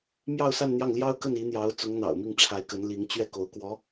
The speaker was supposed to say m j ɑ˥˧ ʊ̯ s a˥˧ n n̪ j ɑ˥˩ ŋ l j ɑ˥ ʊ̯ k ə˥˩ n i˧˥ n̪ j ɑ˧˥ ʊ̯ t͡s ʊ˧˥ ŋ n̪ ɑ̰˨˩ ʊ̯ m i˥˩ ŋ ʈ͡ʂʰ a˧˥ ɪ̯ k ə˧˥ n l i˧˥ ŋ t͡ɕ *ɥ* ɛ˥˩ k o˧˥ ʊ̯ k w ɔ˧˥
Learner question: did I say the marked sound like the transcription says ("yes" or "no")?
yes